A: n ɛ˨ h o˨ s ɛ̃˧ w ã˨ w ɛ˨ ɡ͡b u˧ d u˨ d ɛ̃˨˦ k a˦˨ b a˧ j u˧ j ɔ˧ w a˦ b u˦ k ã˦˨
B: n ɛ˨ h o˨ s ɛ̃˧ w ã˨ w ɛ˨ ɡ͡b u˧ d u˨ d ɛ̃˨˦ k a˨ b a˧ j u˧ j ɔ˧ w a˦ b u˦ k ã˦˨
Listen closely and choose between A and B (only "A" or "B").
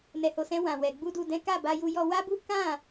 A